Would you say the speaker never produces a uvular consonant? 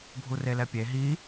yes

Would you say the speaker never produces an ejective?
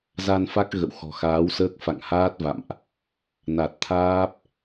yes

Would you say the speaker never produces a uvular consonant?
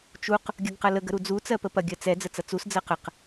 no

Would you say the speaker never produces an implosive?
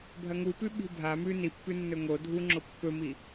no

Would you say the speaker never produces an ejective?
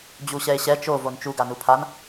yes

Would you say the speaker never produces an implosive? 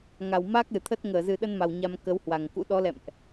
no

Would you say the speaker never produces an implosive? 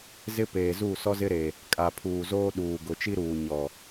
no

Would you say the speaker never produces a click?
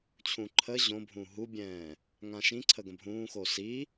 no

